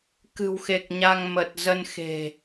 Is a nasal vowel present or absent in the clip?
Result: absent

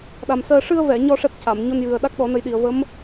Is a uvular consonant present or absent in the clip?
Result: absent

